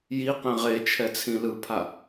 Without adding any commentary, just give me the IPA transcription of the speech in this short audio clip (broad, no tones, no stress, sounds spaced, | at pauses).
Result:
j i q ẽ ʁ e t͡ʃʰ ɛ t͡sʰ ĩ l ɯ pʰ a